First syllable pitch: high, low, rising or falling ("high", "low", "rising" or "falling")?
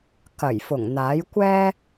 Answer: low